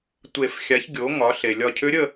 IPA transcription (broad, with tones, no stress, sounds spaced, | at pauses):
tʷ e˨˩˦ f xʲ a˩˥ ç ɡʲ o˩˥ ŋ ɒ˩˥ ɬ e˩ lʲ ɒ˧˩ cʰ ʏ˧˥ ɾʲ ə˥˨